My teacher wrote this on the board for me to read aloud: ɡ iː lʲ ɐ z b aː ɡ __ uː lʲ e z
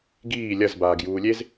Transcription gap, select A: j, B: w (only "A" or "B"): A